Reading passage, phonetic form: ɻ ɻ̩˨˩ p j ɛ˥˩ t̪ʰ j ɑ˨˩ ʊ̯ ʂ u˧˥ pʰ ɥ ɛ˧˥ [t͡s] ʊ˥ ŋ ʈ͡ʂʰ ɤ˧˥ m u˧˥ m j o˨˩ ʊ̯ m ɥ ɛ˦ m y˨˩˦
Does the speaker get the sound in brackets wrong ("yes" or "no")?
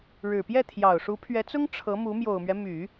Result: no